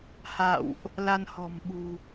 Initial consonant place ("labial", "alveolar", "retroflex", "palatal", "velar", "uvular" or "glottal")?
glottal